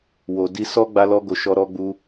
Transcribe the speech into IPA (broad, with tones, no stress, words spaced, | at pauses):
wo˨ di˧sɔ˦ ɡ͡ba˧lɔ˧ɡo˨ ʃɔ˧ ɾɔ˧ɡ͡bu˧